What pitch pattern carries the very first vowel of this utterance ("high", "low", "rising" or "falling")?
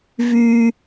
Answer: high